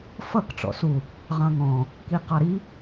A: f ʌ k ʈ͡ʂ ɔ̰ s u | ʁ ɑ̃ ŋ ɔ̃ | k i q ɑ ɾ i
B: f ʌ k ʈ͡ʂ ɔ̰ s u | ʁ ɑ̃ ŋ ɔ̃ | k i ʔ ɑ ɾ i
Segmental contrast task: A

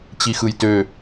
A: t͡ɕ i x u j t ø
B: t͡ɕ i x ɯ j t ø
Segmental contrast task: B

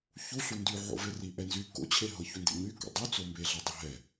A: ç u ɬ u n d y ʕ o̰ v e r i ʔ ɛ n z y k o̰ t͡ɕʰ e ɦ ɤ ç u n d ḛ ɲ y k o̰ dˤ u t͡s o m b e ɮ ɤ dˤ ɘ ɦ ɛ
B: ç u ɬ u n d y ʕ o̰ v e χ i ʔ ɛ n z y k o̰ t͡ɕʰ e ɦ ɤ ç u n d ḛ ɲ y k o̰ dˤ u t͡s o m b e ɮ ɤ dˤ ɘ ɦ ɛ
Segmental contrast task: A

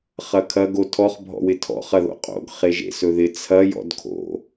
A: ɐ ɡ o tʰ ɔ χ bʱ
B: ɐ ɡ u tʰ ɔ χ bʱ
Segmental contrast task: A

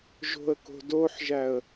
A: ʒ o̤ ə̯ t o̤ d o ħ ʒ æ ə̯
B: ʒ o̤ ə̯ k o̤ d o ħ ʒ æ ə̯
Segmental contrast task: B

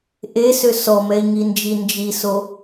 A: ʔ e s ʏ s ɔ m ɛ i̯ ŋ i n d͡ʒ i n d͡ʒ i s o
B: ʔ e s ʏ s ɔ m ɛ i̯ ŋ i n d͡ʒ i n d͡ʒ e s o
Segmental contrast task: A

